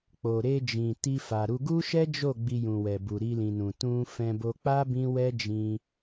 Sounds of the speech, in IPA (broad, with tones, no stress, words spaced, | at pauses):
k͡po˨ɾe˧d͡ʒĩ˨ ti˧fa˨ɾu˧ ɡu˦ʃɛ˦d͡ʒo˦˨ ɡ͡bi˧jũ˨wɛ˨bu˨ ɾi˧lĩ˨nũ˨ tũ˧ fɛ̃˧bo˧k͡pa˦ bĩ˦wɛ˦ d͡ʒĩ˧